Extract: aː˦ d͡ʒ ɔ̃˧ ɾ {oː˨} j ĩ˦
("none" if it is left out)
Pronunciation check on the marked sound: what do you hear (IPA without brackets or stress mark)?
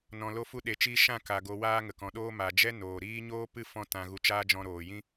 oː˨